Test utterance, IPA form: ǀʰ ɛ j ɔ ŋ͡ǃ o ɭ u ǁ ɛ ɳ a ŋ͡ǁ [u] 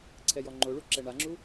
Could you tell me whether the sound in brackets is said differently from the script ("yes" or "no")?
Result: no